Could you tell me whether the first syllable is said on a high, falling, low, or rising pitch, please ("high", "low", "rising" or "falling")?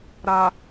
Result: low